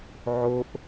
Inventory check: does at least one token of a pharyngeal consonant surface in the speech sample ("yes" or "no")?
yes